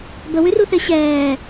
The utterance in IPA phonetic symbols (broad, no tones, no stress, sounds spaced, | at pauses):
b ə w y r u θ e ɕ ɛː